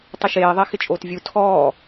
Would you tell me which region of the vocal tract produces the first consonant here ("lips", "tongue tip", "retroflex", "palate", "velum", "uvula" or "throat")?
tongue tip